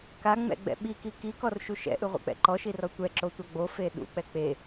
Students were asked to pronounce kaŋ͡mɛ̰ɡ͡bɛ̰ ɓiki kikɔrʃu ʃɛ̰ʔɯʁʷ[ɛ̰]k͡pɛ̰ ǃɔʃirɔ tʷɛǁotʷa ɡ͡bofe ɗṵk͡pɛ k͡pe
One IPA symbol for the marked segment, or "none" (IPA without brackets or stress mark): ɛ̰